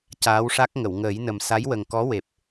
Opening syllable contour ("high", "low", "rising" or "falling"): rising